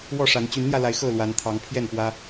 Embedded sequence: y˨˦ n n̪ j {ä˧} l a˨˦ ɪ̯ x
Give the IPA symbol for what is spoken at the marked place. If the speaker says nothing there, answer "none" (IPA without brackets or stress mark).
ä˧